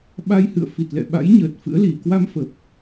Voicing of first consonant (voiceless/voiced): voiced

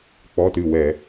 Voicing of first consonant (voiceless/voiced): voiceless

